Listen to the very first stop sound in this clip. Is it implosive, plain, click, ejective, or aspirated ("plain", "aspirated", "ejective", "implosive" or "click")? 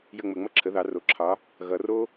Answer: click